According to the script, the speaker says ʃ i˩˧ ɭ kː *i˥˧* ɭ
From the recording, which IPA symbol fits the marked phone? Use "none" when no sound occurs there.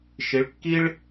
i˥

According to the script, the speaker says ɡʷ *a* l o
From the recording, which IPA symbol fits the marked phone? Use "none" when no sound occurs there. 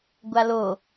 a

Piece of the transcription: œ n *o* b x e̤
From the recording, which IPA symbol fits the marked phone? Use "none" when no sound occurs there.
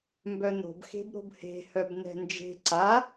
o̤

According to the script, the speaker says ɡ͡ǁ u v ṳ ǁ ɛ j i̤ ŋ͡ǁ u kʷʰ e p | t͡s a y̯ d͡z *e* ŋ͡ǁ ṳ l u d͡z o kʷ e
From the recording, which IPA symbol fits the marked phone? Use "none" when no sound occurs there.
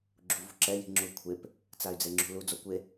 e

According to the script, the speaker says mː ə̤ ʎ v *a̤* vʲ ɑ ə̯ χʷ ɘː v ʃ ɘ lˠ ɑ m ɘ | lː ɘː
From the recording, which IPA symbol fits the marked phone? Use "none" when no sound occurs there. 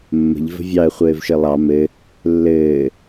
ə̤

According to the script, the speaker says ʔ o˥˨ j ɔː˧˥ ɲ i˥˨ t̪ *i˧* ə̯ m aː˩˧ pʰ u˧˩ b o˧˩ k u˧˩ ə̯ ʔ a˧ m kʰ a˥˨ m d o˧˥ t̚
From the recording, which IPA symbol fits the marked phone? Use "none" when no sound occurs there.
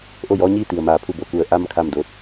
i˩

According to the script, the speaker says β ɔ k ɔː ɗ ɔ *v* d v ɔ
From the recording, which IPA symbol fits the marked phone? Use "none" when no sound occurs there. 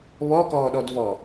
none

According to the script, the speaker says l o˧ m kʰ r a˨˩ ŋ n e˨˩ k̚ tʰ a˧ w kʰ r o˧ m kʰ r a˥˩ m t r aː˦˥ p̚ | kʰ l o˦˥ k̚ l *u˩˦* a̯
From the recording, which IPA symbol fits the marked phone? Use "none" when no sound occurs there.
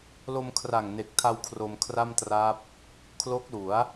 u˩˦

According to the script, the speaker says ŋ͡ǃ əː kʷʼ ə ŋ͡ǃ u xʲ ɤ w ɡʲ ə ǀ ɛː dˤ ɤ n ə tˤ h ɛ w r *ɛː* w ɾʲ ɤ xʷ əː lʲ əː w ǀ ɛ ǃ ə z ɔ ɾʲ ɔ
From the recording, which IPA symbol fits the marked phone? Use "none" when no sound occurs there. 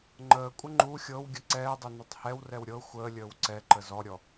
ɛ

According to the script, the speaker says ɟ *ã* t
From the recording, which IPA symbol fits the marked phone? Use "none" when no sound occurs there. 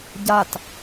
a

